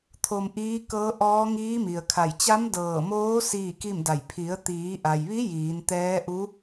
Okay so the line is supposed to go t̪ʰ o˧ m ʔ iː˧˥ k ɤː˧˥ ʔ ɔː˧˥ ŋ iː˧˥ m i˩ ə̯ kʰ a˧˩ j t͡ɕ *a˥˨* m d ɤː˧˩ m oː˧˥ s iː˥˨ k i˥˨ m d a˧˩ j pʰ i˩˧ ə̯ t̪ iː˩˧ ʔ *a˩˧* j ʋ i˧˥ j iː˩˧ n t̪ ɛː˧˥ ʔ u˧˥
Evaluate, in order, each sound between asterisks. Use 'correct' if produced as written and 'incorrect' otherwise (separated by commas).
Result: incorrect, incorrect